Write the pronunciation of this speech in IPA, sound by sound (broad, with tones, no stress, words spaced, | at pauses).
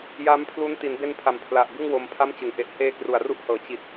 ja˦˥mpʰlu˦˥n ti˩˦nbe˧npʰa˩˦m pʰla˨˩ʔbɯ˥˩ŋ wo˧mpʰa˥˩mt͡ɕɯ˩˦ŋ ʔe˨˩ʔheː˧ kru˨˩a̯ru˥˩ʔhɤː˨˩ t͡ɕi˨˩t̚